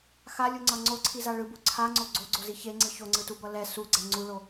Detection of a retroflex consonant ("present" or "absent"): present